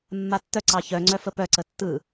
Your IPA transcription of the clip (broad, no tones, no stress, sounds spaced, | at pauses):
mː a tː œ ǀ ɑ ç œ ŋ͡ǀ œ f ə p œ ǀ ə tː ɯ